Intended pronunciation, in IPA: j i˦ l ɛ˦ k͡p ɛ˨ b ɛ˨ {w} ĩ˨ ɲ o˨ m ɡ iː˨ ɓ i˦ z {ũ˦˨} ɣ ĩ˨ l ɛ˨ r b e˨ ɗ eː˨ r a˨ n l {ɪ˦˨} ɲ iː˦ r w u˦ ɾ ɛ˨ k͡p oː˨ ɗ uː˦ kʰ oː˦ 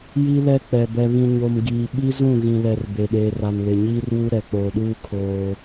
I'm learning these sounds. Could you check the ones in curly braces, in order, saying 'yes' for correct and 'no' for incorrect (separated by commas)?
no, yes, no